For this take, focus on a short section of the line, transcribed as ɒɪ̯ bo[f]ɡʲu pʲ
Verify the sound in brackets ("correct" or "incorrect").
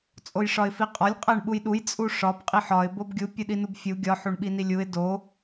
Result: incorrect